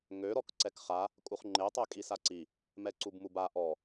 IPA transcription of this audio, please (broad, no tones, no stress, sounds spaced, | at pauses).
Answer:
ŋ ø ɾ ɔ k ǀ ɛ k χ a | kʼ u χ ŋ͡ǃ e tˤ ɛ kʼ i s a ǀ i | m ɛ ǀ u b m u b a ʔ ɔ